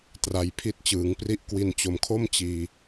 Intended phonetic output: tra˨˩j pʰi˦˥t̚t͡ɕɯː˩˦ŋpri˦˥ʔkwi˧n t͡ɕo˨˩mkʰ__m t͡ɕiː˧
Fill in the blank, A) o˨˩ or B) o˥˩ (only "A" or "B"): B